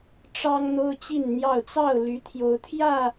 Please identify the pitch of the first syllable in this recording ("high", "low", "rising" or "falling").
high